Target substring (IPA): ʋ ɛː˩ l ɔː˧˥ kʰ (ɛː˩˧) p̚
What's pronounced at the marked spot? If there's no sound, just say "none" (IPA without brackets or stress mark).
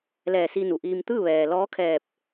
ɛː˧˩